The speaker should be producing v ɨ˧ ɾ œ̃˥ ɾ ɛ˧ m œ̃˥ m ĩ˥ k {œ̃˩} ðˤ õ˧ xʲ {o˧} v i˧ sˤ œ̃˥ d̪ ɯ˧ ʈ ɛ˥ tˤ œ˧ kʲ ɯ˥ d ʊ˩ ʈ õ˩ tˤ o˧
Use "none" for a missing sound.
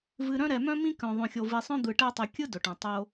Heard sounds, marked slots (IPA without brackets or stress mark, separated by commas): œ̃˧, o˧